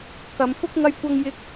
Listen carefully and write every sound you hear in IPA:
k ɐ˨˧ m f ʊ˥ k̚ ŋ ɐ˥ j kʷ ɐ˥ ŋ j ɪ˥ k̚

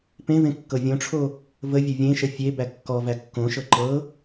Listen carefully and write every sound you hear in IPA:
p ẽ v ẽ kː ɤ vʲ õ ʈ͡ʂʰ o | v ə vʲ ʌ vʲ ẽ ʃ ə fʲ e b æ kː ɔ v æ kː õ ʃ ɤ ǃ ɤ

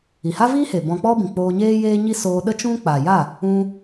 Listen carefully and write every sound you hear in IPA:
i˨ h a˦ v iː˦ h e˨ b ɔ̃˧ k͡p ɔ˦ b ĩ˨ k͡p oː˧ ɲ eː˦ j eː˦ ɲ i˦ s oː˧ ɗ ə˦ t͡ʃ ũ˦ k͡p a˨ j a˦˨ | ũ˧

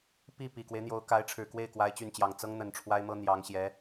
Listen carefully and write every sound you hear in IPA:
p i˥˩ p i˨˩ k w e˦ ɪ̯ n̪ j o˧˥ ʊ̯ k a˧˥ ɪ̯ ʈ͡ʂʰ ɻ̩˨˩ k w e˥˩ ɪ̯ k w a˥ ɪ̯ t͡ɕ y˥˩ n t͡ɕ j ɑ˨˩ ŋ t͡s ɤ˥ ŋ n̪ ə˨˩ n ʈ͡ʂʰ w a˥ ɪ̯ m ɤ˥ n̪ j ɑ˧˥ ŋ ɕ j ɛ˧˥

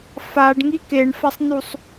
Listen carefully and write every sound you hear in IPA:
f a ɖ ŋ i k e ɳ f a sˤ n u sˤ

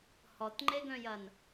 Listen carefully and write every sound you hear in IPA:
h ɔ t ŋ͡ǃ e ɡ œ̃ j ɐ n

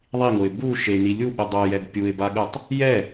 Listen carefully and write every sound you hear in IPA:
ðˤ i ŋ o ɪ̯ b u ʃ e n i lʲ u ɓ ɯ dˤ o j ɛ d pʲ u ɪ̯ b a ɠ ɯ tˤ | j ɛ

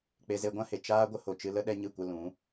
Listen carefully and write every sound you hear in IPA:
k͡p e˧ z e˧ ɡʷ ã˦ h e˨ t͡ʃ aː˦ ɡʷ ə˦ h o˨ t͡ʃ ɨ˧ l ə˦ ɗ ɛ˦ ɲ ɨ˦˨ kʷ ə˧ l ũ˨˦

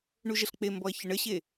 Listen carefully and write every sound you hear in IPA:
ɳ u ʒ ə ɬ k͡p e m b ɔ ɐ̯ ç ə ɳ ə ɕ e

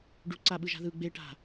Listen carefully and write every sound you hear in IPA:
ɖ u ǀ a ɓ ɯ ʒ a̤ ð ɯ ɡ͡b e ʈ a̤

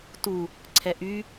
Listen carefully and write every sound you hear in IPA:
t u | ǀʰ ɛ ʔ y

